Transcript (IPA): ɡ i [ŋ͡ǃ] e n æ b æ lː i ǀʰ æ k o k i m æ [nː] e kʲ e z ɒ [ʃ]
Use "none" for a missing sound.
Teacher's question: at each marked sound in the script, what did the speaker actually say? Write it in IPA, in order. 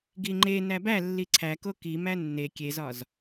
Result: ŋ͡ǃ, nː, z

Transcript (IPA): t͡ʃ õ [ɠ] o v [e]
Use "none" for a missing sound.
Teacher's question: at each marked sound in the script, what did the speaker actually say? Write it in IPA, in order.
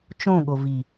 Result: ɠ, i

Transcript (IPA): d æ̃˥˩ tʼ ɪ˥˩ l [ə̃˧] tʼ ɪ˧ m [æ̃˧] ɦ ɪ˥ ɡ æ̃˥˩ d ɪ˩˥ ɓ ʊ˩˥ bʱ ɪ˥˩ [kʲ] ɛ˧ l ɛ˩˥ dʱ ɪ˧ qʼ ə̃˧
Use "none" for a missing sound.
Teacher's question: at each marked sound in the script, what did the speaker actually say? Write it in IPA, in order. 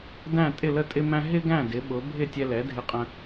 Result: ə˧, æ̃˧, tʲ

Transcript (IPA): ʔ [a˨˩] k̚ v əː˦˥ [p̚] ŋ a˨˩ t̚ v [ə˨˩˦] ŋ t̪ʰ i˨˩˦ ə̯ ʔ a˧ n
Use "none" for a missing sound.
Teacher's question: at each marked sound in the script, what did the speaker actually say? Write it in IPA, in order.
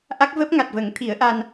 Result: a˦˥, p̚, ə˨˩˦

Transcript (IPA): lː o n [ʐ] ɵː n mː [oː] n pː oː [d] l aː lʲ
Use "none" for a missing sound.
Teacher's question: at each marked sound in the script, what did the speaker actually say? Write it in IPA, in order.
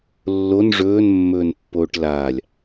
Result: ʐ, ɵː, ʈ

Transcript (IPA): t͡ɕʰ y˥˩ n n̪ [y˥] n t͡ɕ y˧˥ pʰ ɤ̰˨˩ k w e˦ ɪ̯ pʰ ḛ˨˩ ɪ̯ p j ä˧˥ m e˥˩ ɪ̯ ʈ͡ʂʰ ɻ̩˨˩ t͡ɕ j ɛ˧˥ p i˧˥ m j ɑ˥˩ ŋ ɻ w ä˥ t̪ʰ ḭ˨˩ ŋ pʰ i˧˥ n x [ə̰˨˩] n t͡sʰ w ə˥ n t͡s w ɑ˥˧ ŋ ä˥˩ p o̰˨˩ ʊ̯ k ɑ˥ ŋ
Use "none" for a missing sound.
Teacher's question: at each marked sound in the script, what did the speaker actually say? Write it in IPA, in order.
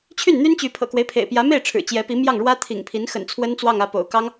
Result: y˥, ə̰˨˩

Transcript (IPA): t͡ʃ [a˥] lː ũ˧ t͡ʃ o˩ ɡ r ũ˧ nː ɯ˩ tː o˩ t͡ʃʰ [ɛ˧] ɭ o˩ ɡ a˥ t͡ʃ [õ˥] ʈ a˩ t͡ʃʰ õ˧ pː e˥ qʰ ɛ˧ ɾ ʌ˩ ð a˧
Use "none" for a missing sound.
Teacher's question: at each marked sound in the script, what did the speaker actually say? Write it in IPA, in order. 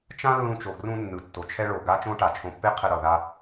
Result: ã˥, ɛ˧, õ˥

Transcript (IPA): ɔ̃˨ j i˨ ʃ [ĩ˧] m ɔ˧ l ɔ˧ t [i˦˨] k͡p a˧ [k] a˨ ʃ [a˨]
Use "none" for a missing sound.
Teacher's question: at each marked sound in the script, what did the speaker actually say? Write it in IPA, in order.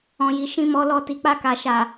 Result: ĩ˧, i˨, k, a˨

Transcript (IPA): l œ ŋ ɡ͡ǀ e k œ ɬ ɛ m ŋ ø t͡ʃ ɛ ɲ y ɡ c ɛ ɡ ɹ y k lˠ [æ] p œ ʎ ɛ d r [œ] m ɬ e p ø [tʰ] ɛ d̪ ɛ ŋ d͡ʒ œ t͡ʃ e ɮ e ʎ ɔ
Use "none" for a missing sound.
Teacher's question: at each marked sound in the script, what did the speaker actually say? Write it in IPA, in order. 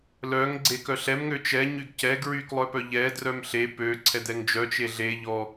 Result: œ, œ, ǀʰ

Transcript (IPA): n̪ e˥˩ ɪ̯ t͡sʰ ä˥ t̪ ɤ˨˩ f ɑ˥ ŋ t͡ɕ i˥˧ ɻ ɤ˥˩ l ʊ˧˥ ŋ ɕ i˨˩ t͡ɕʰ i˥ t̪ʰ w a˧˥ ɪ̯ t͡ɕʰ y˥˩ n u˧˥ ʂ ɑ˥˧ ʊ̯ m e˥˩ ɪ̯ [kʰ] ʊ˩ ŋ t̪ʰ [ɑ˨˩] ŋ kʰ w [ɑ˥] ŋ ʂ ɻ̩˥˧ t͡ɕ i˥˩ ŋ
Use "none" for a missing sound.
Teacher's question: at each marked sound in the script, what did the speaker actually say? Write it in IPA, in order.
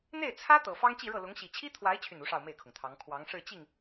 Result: kʰ, ɑ˧˥, ɑ˧˥

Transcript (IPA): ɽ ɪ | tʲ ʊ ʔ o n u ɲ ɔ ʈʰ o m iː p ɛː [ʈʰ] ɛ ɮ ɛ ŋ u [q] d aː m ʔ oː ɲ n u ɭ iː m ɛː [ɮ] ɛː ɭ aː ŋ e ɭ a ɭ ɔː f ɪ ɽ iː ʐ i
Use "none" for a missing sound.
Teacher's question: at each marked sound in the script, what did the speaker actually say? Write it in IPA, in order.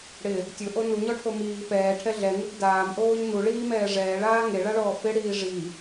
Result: ʈʰ, ɡ, ʐ

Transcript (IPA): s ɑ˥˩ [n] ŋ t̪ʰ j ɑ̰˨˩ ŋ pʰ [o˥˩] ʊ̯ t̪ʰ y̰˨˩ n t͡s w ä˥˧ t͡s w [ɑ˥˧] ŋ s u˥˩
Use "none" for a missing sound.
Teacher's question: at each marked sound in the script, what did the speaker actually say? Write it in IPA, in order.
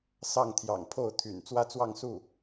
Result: none, o˥˩, ɑ˥˧

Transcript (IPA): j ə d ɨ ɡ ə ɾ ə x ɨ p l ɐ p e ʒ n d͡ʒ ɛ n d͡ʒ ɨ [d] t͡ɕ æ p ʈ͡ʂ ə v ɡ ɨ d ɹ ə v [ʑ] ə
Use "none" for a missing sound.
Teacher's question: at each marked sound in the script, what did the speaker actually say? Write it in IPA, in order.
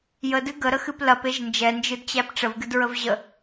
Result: d, ʑ

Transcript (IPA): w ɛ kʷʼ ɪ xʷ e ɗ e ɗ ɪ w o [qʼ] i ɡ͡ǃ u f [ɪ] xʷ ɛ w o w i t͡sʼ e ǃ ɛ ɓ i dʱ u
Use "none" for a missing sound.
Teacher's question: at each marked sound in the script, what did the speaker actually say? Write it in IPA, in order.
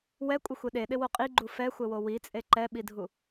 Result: qʼ, ɛ

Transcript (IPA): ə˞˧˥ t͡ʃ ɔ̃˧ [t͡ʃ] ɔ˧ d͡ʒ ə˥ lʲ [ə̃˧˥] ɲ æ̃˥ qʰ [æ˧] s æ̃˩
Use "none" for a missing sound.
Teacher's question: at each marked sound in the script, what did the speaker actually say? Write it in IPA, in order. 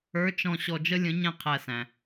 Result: ɕ, ə̃˧˥, æ˧

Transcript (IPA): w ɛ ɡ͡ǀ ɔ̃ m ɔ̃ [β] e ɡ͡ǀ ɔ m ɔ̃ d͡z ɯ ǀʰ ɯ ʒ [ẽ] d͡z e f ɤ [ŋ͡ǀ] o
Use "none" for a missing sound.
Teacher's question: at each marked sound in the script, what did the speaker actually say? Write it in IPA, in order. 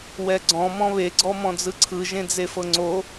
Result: β, ẽ, ŋ͡ǀ

